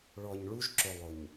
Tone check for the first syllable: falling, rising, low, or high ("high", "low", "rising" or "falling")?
low